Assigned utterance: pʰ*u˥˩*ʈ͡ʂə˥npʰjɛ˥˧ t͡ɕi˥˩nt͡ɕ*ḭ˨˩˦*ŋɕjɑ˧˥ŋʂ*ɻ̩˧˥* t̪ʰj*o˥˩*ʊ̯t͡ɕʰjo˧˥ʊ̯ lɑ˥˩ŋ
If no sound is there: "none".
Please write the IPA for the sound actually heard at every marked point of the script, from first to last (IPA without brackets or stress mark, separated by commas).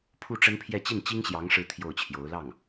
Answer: u˥˩, i˥, ɻ̩˧˥, o˥˩